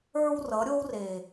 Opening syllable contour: high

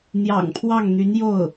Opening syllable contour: low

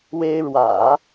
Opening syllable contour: high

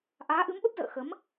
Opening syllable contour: rising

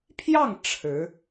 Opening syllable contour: falling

